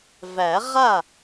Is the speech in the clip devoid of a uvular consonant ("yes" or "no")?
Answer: no